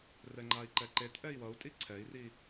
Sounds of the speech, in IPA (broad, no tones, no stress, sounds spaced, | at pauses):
r ɛ ŋ͡ǃ a i̯ ǃ ɛ ǃ e t ʔ ɛ i̯ w ʌ u̯ tʼ i ǀʰ ɛ i̯ r i